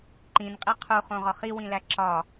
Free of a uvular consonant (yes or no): no